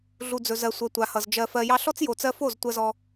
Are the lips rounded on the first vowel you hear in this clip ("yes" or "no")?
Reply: yes